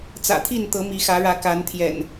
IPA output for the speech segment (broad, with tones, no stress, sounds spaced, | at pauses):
t͡s ä̰˨˩ t̪ʰ i˥˨ n t̪ ɤ˨˦ m i˨˦ x ä˨˦ ɻ ä˨˦ k a˨˦ n t̪ʰ j ɛ̰˨˩ n